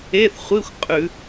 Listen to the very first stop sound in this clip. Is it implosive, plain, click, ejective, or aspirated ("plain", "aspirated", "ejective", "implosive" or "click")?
ejective